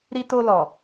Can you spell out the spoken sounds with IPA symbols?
ɾ i˧ t o˧ l ɔ˨

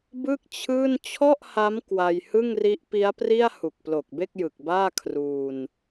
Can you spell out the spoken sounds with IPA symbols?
b ɯ˥˩ k̚ t͡ɕʰ ɯː˥˩ n t͡ɕʰ ɔ˥˩ ʔ h a˦˥ m k w a˧ j h ɯ˥˩ ŋ r i˦˥ ʔ p i˦˥ a̯ p r i˥˩ a̯ h u˨˩ k̚ p l o˨˩ k̚ b e˥˩ k̚ j ɯ˨˩ k̚ b aː˥˩ kʰ r uː˧ n

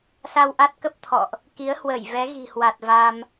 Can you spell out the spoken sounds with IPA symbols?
s a˧ w ʔ a˦˥ t̚ k ə˦˥ p̚ t̪ʰ ɔ̰˧˨ ʔ | k i˨˦ ə̯ h w ə˧˩ j v ɛ˨˦ ɣ i̤˨˩ h w a˨˩ t̚ v a˧ m

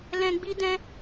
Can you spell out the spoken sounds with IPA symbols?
l ɛ̃˧ ɡ͡b i˦ d ɛ̃˦

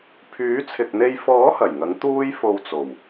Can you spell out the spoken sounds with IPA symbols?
pʰ yː˨˥ t͡sʰ ɪ˨ k̚ n̪ e˧ j f ɔː˨˥ h ɐ˨˩ j ŋ ɐ˨˥ ŋ t̪ uː˥ j f o˧ w t͡s o˨˩ w

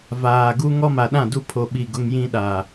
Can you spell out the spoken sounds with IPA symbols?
v aː˨ ɡ u˦ ŋ ɔ˦ m a˨ ɗ ã˦˨ d u˦ pʰ o˨ ɓ i˨ ɡ ʊ˦ ŋ j ĩ˦ ɗ a˨

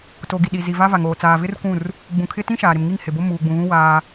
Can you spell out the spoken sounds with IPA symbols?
t o˨ ɡ i˨ ɗ i˨ z i˨ v a˦ v a˨ ŋ oː˨ t͡s aː˨ v ɪ˦ r kʷ ũ˦˨ r | ɡ͡b ũ˨ kʰ ɪ˦ t ĩ˦ ʃ aː˨ ɾ ɪ˨ m ŋ i˦˨ ŋ h ɪ˨ b o˦ m uː˨ ɡ͡b ũ˨ ɣ ũ˦ w aː˦

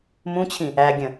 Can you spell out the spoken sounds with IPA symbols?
m ũ t͡ɕʰ ĩ | æ ɡʲ ə̃

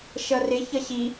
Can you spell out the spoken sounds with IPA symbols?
ʃ ʌ r ɪ ç ʌ ɕ i

